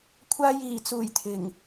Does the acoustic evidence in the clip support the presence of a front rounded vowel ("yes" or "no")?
no